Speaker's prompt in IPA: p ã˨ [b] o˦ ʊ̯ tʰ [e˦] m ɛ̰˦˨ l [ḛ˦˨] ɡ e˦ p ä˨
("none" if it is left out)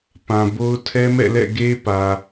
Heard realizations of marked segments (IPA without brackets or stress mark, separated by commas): b, ɛ˦, ɛ̰˦˨